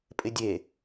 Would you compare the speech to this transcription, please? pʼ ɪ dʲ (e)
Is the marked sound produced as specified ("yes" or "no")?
yes